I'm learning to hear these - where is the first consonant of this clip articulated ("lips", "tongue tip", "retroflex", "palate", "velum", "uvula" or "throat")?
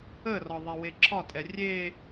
tongue tip